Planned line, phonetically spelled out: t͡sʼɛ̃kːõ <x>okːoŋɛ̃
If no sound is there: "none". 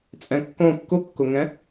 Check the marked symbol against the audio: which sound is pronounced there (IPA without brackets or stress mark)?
kː